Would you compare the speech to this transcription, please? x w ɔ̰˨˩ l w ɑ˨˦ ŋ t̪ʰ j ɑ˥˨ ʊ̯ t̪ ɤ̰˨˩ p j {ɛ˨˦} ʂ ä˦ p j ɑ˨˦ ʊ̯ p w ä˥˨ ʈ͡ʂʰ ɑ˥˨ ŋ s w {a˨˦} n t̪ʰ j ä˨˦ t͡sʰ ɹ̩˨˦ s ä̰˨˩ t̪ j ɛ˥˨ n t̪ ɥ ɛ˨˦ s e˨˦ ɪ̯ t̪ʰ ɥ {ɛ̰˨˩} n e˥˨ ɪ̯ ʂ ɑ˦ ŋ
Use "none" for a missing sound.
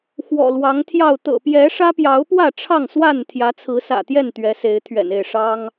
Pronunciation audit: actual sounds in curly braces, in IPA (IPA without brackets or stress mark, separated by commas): ɛ˨˦, a˥˨, ɛ̰˨˩